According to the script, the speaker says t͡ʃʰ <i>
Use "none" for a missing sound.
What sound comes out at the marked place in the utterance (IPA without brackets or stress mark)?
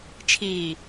iː